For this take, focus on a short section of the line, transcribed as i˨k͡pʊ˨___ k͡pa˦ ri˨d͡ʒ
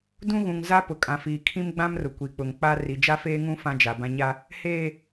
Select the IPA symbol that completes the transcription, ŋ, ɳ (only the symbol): ŋ